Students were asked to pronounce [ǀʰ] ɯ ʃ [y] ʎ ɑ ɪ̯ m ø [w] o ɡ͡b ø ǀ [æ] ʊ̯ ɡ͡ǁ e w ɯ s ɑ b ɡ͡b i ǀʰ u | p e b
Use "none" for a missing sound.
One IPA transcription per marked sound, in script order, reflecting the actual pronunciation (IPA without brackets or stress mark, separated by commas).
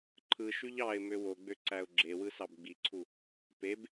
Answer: ǃʰ, y, w, æ